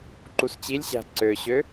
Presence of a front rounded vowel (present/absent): present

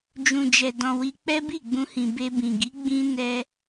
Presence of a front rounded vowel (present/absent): absent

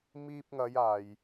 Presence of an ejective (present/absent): absent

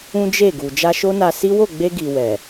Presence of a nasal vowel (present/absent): present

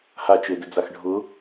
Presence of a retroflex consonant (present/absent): present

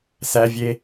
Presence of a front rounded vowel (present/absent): absent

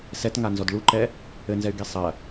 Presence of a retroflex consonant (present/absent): present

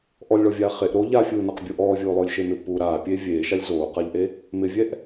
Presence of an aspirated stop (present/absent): absent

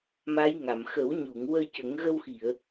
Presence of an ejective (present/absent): absent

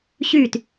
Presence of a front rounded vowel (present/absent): present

